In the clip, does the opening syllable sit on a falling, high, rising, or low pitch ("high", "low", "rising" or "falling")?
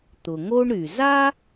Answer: low